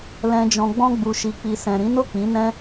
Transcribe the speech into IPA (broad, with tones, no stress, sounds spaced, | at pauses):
l ɛ̃˨ d͡ʒ ɔ̃˨ ɡ͡b ɔ̃˧ ɡ͡b u˨ ʃ i˨ k͡p i˨ s ɛ̃˨ ɾ ĩ˨˦ n o˦˨ k͡p ĩ˨˦ n ɛ̃˦